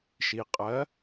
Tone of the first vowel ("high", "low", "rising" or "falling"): low